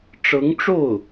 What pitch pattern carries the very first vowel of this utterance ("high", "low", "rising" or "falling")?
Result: rising